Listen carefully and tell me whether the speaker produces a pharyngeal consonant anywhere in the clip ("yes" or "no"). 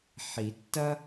yes